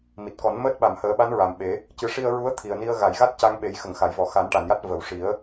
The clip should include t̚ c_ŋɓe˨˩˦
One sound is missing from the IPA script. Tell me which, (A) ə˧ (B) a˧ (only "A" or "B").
B